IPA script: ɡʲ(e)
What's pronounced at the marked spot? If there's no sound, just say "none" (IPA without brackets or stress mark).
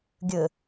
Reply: ɘ